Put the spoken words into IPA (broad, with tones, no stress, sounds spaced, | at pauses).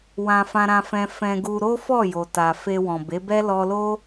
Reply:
w ã˧ f ã˧ ɾ ã˧ f ɛ̃˧ f ɛ̃˧ ɡ u˧ ɾ o˦ f ɔ˦˨ j o˨ t a˨ f e˧ w ɔ̃˨ b e˨˦ b ɛ˦ l ɔ˧ l o˦